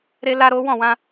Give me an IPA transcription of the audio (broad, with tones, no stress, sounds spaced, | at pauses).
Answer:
ɾ e˦ l a˦ ɾ o˦ w ɔ̃˦˨ w ã˧